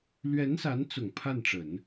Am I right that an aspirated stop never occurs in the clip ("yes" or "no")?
no